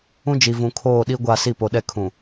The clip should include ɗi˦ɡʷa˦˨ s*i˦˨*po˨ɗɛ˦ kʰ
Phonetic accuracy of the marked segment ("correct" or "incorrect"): correct